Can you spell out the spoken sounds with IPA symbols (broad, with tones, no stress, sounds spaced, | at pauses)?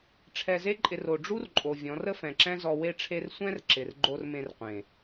ʈ͡ʂʰ ɛ˧ z e˦ ǃʼ ɪ˧ r o˨ ɖ͡ʐ u˦ r ǃʼ o˨ vʲ ɔ̃˨˦ r ə˦ f ɛ̃˨ ǁ ɛ̃˦ z ɔ˧ w e˦ ʈ͡ʂʰ e˦ r sʷ ɛ̃˦ r ǁ ɪ˨ r ɡ͡ǃ o˧ r m ẽ˧ r qʷ ẽ˨